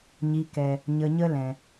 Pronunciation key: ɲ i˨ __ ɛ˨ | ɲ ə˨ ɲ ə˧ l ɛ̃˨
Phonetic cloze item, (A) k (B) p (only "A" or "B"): A